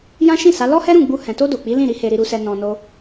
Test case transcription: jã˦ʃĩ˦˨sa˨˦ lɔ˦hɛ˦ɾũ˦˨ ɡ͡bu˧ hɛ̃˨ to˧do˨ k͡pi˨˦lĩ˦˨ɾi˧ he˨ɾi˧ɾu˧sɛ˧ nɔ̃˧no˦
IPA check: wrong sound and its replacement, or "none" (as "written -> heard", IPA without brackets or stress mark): e˨ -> e˧